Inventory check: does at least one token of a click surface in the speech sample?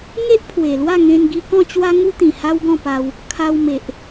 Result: no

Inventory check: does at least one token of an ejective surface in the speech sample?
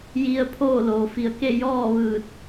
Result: no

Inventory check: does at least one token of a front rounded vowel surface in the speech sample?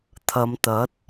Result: no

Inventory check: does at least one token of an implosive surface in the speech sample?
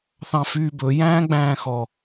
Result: no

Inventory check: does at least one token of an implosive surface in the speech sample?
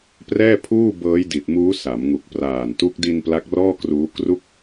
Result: no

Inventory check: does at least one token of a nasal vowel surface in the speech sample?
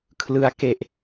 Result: no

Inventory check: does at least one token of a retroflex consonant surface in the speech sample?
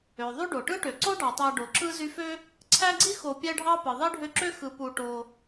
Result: yes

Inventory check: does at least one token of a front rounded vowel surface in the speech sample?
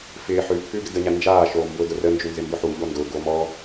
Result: no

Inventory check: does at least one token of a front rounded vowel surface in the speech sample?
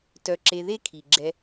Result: yes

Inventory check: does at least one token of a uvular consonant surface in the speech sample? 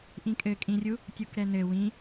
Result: no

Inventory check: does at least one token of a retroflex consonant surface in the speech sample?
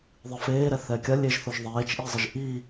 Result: no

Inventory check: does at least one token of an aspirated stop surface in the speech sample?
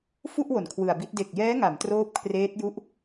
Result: yes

